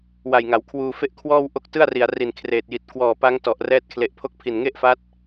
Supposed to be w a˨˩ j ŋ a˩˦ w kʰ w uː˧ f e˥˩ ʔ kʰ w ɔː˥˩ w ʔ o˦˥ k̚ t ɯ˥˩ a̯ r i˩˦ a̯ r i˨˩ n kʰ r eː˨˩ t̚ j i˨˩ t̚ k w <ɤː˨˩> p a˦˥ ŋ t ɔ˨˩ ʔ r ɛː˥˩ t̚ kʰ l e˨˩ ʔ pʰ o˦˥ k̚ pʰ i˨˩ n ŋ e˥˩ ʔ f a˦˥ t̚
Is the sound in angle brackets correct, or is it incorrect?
incorrect